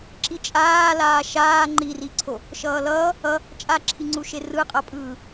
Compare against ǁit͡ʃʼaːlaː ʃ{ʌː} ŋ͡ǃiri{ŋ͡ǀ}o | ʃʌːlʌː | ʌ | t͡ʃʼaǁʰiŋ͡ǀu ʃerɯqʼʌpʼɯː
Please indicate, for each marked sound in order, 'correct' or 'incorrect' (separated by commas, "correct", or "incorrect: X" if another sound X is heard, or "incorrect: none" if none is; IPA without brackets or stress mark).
incorrect: aː, incorrect: ǀʰ